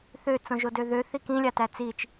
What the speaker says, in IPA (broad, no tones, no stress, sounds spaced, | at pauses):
θ ø t͡s õ ʒ o d ø ð ø θ i k ĩ lʲ a t æ t͡s i t͡ʃ